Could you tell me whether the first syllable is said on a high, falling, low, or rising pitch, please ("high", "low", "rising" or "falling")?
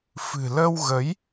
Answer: low